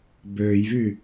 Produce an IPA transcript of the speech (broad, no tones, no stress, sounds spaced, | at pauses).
b øː j v y